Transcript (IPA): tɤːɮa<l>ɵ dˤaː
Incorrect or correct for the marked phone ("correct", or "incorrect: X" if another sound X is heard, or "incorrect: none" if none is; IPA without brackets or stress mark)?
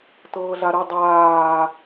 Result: incorrect: ɾ